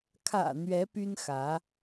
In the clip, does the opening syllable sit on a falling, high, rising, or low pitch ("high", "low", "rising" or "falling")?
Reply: low